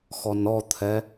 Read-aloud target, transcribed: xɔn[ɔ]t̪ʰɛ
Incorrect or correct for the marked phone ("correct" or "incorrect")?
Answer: correct